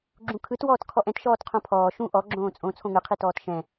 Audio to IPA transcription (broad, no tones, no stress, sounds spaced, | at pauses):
ɡ͡ǁ ũ kʰ ɯ t w ɔː t kʰ ɔ ʔ ɛ̃ t ʃ ɔː t qʰ õ pʰ ɔː ʃ ũ ʔ ɔ ɡ͡ǁ õː t͡sʼ õ t͡sʰ õ ŋ ɯ qʰ i t ɔː t ʃ ɛ̃